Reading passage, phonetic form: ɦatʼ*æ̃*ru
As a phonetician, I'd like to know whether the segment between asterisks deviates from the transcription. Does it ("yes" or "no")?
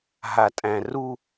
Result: no